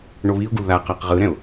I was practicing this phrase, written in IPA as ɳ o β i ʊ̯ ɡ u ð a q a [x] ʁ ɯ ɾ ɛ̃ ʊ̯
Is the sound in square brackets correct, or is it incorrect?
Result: incorrect